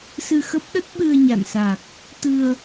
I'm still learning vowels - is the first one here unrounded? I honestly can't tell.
yes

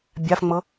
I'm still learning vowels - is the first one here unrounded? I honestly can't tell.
yes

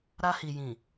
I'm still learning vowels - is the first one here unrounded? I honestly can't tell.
yes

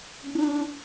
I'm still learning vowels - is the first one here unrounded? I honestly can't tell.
no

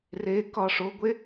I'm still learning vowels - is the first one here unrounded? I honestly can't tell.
yes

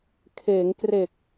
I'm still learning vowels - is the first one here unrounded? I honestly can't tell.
yes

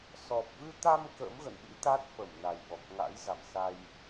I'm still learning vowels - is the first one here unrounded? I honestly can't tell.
no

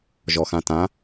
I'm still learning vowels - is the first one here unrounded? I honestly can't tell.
no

